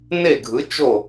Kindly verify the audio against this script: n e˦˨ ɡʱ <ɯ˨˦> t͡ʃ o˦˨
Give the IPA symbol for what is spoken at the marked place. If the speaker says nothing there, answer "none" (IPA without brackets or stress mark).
ɯ˨˦